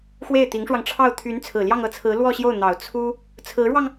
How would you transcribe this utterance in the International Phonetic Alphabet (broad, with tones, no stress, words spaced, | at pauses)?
xwe˥˩ɪ̯t̪i˧˥ŋʂwɑ˧ŋʈ͡ʂʰɑ˥˩ʊ̯ t̪ʰy˧˥n t͡sʰɹ̩˨˩ljɑ˥˧ŋɤ˥˩t͡sʰɹ̩˧˥ lwɔ˥˧ɕjo˥˩ʊ̯n̪ɑ˨˩ʊ̯ t͡sʰu˥ | t͡sʰɹ̩˧˥ɻwɑ˧ŋ